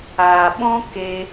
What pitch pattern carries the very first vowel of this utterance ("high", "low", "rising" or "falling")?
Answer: low